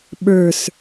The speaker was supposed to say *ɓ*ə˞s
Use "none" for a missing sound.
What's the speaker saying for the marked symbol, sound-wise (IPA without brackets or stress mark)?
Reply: ɓ